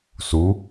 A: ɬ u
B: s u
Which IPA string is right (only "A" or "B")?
B